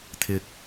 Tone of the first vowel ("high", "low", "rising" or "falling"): low